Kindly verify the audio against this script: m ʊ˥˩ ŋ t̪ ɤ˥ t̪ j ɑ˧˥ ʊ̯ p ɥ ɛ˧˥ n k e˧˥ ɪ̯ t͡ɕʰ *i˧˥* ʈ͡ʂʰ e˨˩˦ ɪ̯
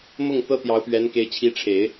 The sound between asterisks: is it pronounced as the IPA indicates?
yes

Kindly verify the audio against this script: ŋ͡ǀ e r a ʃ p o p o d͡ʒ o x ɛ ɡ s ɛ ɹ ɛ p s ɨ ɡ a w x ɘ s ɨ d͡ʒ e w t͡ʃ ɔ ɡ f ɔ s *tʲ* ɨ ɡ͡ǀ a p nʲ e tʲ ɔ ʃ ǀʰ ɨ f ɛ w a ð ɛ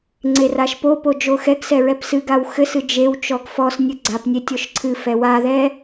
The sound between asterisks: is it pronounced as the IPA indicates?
no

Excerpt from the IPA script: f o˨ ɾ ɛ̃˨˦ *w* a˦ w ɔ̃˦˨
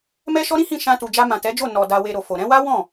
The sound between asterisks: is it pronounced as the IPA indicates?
yes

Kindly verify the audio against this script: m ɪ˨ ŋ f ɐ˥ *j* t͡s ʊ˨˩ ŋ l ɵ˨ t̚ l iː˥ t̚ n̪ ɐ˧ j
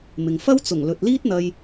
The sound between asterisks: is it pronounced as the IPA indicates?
no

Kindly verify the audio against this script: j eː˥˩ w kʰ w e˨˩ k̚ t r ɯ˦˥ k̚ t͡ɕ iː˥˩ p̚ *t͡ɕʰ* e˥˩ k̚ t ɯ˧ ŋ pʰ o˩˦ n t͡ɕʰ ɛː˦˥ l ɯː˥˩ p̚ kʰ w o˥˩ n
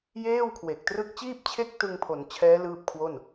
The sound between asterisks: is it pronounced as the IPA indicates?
yes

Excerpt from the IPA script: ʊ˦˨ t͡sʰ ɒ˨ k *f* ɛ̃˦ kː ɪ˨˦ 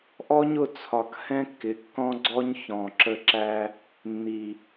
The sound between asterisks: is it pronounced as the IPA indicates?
no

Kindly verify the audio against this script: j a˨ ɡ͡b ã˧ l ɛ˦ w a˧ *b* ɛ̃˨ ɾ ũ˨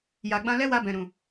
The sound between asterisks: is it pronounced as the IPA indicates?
yes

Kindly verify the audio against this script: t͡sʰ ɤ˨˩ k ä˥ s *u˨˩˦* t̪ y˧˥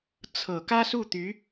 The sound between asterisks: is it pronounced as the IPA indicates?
no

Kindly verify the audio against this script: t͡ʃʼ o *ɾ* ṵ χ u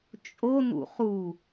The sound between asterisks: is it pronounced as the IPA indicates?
no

